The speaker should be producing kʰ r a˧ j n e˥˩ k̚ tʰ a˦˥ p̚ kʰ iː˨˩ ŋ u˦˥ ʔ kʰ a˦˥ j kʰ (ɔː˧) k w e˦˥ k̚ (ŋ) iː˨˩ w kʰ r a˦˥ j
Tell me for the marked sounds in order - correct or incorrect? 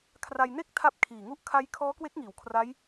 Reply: incorrect: ɔː˦˥, correct

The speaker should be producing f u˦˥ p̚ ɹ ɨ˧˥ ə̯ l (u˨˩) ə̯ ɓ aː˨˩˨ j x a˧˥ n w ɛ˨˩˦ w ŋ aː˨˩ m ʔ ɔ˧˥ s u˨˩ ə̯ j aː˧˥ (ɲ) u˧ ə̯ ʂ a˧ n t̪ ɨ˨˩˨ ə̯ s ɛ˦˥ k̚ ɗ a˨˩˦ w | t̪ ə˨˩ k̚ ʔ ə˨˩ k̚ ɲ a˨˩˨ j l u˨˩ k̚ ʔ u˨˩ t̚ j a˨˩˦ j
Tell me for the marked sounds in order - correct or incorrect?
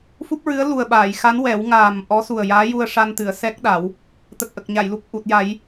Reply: correct, incorrect: j

